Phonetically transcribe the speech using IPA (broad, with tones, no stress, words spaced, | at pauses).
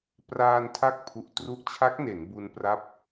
praː˧ntʰa˦˥k̚ pʰu˨˩ʔtru˦˥ʔ t͡ɕʰa˦˥k̚ne˩˦n bu˧npra˦˥p̚